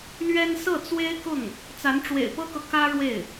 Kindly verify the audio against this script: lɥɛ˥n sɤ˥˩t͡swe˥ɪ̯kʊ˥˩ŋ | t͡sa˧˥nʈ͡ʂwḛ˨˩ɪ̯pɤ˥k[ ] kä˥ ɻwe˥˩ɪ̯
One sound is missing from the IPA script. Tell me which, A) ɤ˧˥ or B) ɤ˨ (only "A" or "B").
B